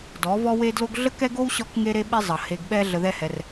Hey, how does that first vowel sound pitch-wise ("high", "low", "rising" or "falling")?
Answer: rising